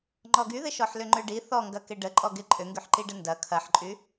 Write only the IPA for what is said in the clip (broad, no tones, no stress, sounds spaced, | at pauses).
ŋ͡ǃ ɔ ɡ y ð ɪ ʃ ɔ ħ l ʏ ŋ͡ǃ ø ɖ i θ ɔ ŋ ɡ ɐ k ɪ ɖ ə ǃʼ ɔ ɡ ɪ ǃʼ ʏ ŋ ɡ y ħ ǃ i ɖ ə n d ɐ kʰ ɐ ħ ǃʼ y